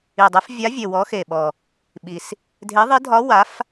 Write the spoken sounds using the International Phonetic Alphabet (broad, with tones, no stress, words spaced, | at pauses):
i˨˩dˤe˨˥f vʲa˨˥vʲe˨˩ wɔ˨˥xe˨˩ ɓɔ˨˩ | ɓi˨˩s | dʱe˨˥ðˤi˨˥ dʱɒ˨˥ wa˨˥f